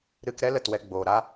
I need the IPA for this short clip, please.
ɾ ɨ˧ k ɾ ɛ˦ l ə˦˨ t w ɛ˧ ɡ͡b oː˨ ɾ a˦

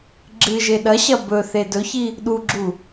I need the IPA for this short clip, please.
ɡ͡ǁ ɨ ʒ e ɗ ɐ ɕ ɐ b ɵ θ e d ɵ ç i | ɗ u ɡ͡ǁ u

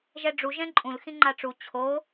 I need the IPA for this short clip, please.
ʒ ɛ ɖ͡ʐ u ʒ ɛ̃ ǃʼ ũ l x ĩ ŋ͡ǃ a ʈ͡ʂ u t͡ɕʰ o

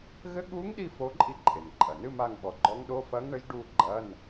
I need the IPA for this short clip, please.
ɣ ɘ˧˥ ɠ u˧˥ ŋ ɗ i˦˨ f o˧˥ ǃʼ i˧˥ ǃʼ e˩ n ǃʼ ɐ˩ n ɨ˧˥˧ m a˦˨ ŋ ɓ ɔ˩˥ ɡ͡ǃ ɔ˧˥ ŋ ɗ o˧˥˧ f ɐ˧˥ ŋ ɳ ɘ˧˥ ʒ ɖ u˦˨ ɡ͡ǃ ɐ˧˥˧ n

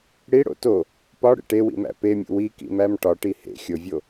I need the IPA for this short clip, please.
ɽ i ɽ o̰ t o | p ɒ ɽ ḛ ʈ e w ḭ m æ̰ p e mʲ ṵ w i k ḭ m æ m ʈ ɒ ʈ i h ḛ xʲ o vʲ o

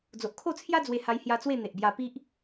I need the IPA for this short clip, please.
d͡z o˨ ʔ kʰ o˥˧ t͡sʰ j a˦ d͡z w e˧ h a˧ j h j a˧ t͡s w e˥˧ n̪ e˨ ʔ b j a˧ p i˦ ʔ

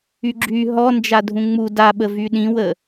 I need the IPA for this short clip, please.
y ɡ͡ǁ y ɦ ɔ n d͡ʒ a dʱ ũ ŋ͡m u d a ɓ ə v y ɗ ĩ w ə

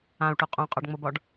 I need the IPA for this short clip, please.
ã u̯ ʈ o qʼ õ qʼ ɒ ɖ ŋ͡m ɤ b ɒ ɖ

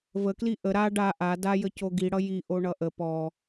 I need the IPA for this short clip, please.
v ə k l i ʔ ə ɾ a ɖ a ʔ a d a j ə c o ɡ i ɽ ʌ j i ʔ o ɳ ʌ ʔ ə p ɔ

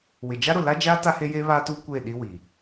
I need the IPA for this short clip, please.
w ɪ˨ d͡ʒ a˦ ɾ ʊ˨ l a˦ d͡ʒ aː˦ t a˦ h e˦ j eː˦ β aː˦ t uː˦ kʷ eː˦˨ ɗ i˦ w i˨

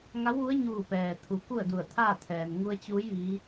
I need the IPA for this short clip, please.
ŋ a˧˥ w ʋ u˧˥ ə̯ ɲ uː˧˩ p ɛː˩ t̪ʰ u˩˧ k u˥˨ ə̯ d u˧˩ ə̯ t̪ʰ aː˥˨ t̪ʰ ɛː˩ n ŋ u˧ ə̯ t͡ɕ uː˧˥ j ʋ i˧˥

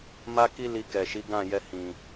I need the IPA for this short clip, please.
m a˧ k i˧ l i˧ k ɛ˨ ʃ i˨˦ ɡ ã˦˨ j ɛ˧ h ĩ˨

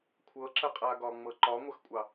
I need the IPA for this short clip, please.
kʷʰ ɤ ǁ ə qʼ a ɡ ɒ ŋ͡m ɤ ǃ ɒ ŋʷ ə x kʷʼ ɑ

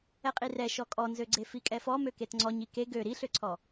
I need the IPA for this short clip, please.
ɛ qʼ i r ɛ ʃ ɔ kʼ ɔ n z ø ɡ͡ǀ e f i kʼ ɛ f ɔ m ø k e t ŋ͡ǀ ɔ ɲ i k e ɡ ø ɾ i ɬ ø ǀʰ ɔ

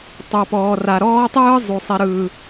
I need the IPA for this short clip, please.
tˤ o˨ p ɔː˨ r a˨ ɾ ɔː˦ tˤ ɯː˦ zˤ u˨ sˤ ɛ˦ ɾ ɯː˦

